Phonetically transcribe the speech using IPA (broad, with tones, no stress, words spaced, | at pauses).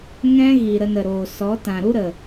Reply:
ŋɛ̃˧ ɣi˨ ɾə˧nə˨ɾoː˨ sɔ˨˦ tã˨ɾu˦ɾə˨